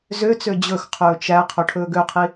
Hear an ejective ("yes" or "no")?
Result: no